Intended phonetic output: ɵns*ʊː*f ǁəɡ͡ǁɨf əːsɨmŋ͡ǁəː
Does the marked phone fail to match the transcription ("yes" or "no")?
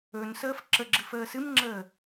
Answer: yes